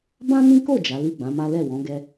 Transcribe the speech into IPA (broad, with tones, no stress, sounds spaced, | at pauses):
b ã˦ n ĩ˦ k o˦˨ d͡ʒ a˨˦ l i˦˨ ɡ͡b ã˨˦ m a˦ l ɛ˦˨ w ɔ̃˨˦ ɡ ɛ˧